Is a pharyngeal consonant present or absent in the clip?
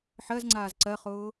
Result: present